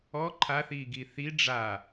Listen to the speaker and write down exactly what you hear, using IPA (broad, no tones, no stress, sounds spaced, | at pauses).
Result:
ɔ ǃʰ a θ iː ɡ i θ i ɖ͡ʐ a